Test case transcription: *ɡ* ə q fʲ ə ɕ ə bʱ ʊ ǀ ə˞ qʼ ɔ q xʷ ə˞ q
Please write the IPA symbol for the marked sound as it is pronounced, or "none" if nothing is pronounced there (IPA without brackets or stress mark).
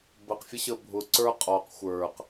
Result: b